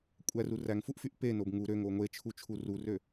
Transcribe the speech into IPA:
kʷʼ æ r u r æ ŋ f u ʔ f y ʔ p e n o b ŋ u ɾ ø ŋ o ŋʷ e t͡ʃʰ u t͡ʃʰ u r u r ø

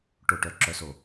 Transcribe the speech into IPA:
ʈ o˧˩ ʈ œ˧˩ ǁ œ˧ s o˧˩

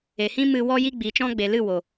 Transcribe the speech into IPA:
e˨ h ĩ˦ m ɨ˧ w ɔ˧ j i˧ ɡ͡b iː˨ t͡ʃ ɔ̃˧ ɡ͡b e˨ l ɨ˦˨ w o˨

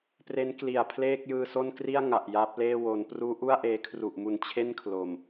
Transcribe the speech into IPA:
p r e˦˥ n k l i˨˩ a̯ pʰ l eː˥˩ k̚ j ɯː˧ s o˥˩ n k r i˥˩ a̯ ŋ a˨˩ ʔ j aː˦˥ p̚ l eː˥˩ w o˩˦ n p r uː˦˥ ʔ u˥˩ a̯ ʔ eː˧ kʰ r u˨˩ ʔ m u˨˩ n t͡ɕʰ e˥˩ n kʰ l o˨˩ m

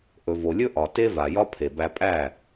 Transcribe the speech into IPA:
ʔ ɵ˨ v o˨ lʲ ɵ˦ ʔ ɒ˨ t e˦ v a˨ j ɒ˦ pʰ e˨ b æ˧ pʼ æ˦˨

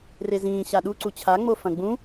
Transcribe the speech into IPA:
r e z ĩː ɕ a ɗ u ǀ u t͡ɕʰ a ŋ͡m o f ɐ̃ ɡ͡b ũ

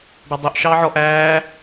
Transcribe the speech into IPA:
ɖ ɑ dˤ œ ʔ ʃ ɑː ʕ ɔ ʔ æː

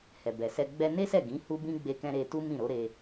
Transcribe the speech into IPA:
h ɛ˨ b ɛ˨ s ɛ˧ ɡ͡b ɛ˧ n e˦ s ɛ˦˨ ɡ ĩ˨˦ h u˦ b ĩ˦ ɡ͡b e˧ k ɛ̃˧ ɾ e˧ t u˦ m ĩ˦˨ ɾ o˨˦ ɾ e˧

